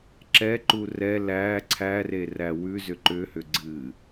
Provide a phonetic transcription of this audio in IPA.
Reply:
ǁ ɛ ǃ u r ɛ l æ ǀʰ æ r e r æ w ʉ z ʏ ǃ ʏ h ʏ ɡ͡ǀ ɨ

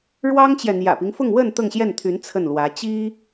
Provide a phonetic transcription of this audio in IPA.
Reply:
ɻ w ɑ˥ ŋ t͡ɕ j ɛ˨ n̪ j ä̰˨˩ p i˦ ŋ f ʊ˥˧ ŋ w ə˥˧ n t̪ ɤ˥˧ ŋ ɕ j ɛ˥˩ n t̪ʰ y˧˥ n t͡sʰ ə˥˩ n l w ä˧˥ t͡ɕ i˥

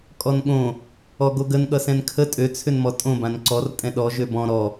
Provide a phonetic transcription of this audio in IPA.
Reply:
kʼ ɔ n ɠ õ | ɔ ɡ o ɡ ə n ɠ ʌ s ɛ̃ n kʰ ə tʼ ø t͡sʰ ʏ n m ɔ tʼ õ b ã n ǀ ɔ r tʼ ɛ̃ ɗ ɔ ʒ ø b ɔ̃ ɾ ɔ

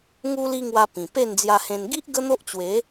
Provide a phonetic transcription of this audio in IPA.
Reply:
ŋ u˧ l i˧ ŋ w a˧ p ĩ˨˩ p e˥˧ n d͡z j a˧ h ẽ˧ n ɡ i˦ ʔ ɡ ə˦ n̪ o˦ ʔ t͡ɕ w e˨˦

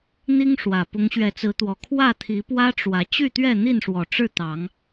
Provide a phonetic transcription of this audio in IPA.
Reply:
n̪ i˦ ŋ ʂ w ä˨˩ p ʊ˨˦ ŋ ɕ ɥ ɛ˨˦ t͡s ɹ̩˨˦ t̪ w ɔ˨˩ kʰ w ä˥˨ t̪ʰ i˨˦ p w ä˦ ʈ͡ʂ w ä˨˦ t͡ɕ y˥˨ t̪ ɥ ɛ˥˨ n̪ i˥˨ n ʂ w ɔ˨˩ ʈ͡ʂ ɻ̩˥˨ t̪ ɑ˨˦ ŋ

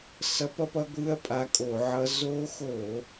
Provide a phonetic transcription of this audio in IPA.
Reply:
s ʌ˧˥ p ʌ˧˥ p ʌ˧˥ ɡʷ ɯ˧˥˧ ɐ̯ pʼ a˧˥ kʼ o˧˩˧ ʕ ʌ˧˥ z o˧˥ x o˧˩˧

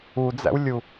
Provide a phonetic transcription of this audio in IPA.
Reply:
u d͡z æ̰ w lʲ u

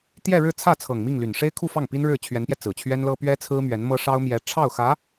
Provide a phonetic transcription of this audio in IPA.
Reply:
t̪ j ɛ˥˧ ɻ ɻ̩˥˧ t͡sʰ ä˥˩ t͡sʰ ɤ˨˩ ŋ m i˥˩ ŋ l y˨˩ n ʂ e˥ ɪ̯ kʰ u˥˧ f ɑ˥˩ ŋ p i˥ n ɻ ɻ̩˥˩ t͡ɕʰ ɥ ɛ˧˥ n p j ɛ˧ t͡s ɹ̩˨˩ t͡ɕʰ ɥ ɛ˥ n l ɤ˥ p ɥ ɛ˥ t͡sʰ ɹ̩˥ m ɥ ɛ˧˥ n m ɤ˥ ʂ ɑ˥ ʊ̯ m j ɛ˧˥ ʈ͡ʂʰ ɑ˥˩ ʊ̯ x ä˧˥

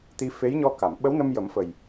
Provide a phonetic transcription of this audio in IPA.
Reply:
t̪ i˧˥ f e˧˥ j ɲ ɔ˧ k a˨˩˨ m ɓ ə˧˥ w n ə˧ m j ə˨˩˦ m f ə˨˩ j

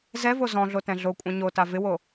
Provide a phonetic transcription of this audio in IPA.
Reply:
z ɛ v o z ɔ̃ ɮ o t ɛ̃ ɮ o kʷʼ ã ɲ o t a v ɪ w o

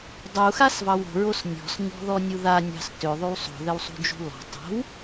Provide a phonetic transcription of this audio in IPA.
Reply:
dˤ u x a s v ɑ w o̤ ɹ o s nʲ ɔ̤ s ɲ ɔ̤ ð ɔ nʲ u ð a nʲ ɑ̤ s t ø ðˤ y w sˤ o̤ ð ɘ w sˤ ṳ d͡ʒ ṳ l ɔ̤ tˤ o̤ w

